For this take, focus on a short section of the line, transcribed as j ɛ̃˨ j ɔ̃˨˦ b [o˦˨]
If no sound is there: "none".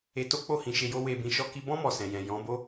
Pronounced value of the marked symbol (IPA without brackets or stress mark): o˦